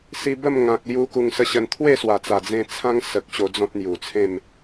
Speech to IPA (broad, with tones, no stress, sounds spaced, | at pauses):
s i˧ b ə˥˧ m ŋ ã˨ k̚ l j u˧ k u˧ ŋ s ə˥˧ ɕ ə˧ n t̪ʰ w e˥˧ s w a˨˩ t͡s a˨˩ d͡z ẽ˧ t͡sʰ ã˦ ŋ s ə˨ k̚ ɕ o˧ d͡z ɔ̃˦ t̚ n̪ j u˨˩ t͡sʰ ẽ˥˧ m